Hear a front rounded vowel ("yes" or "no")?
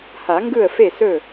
no